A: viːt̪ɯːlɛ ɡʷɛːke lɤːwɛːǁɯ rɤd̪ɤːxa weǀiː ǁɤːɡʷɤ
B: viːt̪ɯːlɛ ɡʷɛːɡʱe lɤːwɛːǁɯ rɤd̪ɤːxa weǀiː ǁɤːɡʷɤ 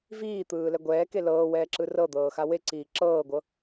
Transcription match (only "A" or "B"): A